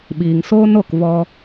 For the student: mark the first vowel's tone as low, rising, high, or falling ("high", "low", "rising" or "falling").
low